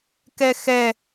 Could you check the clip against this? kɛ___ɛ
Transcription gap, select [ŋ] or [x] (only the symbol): x